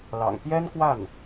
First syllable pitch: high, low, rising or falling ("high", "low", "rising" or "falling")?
low